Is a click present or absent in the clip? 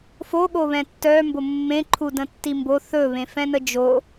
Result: present